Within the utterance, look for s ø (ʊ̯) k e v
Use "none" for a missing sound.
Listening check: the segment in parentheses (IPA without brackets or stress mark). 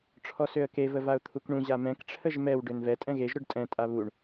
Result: ə̯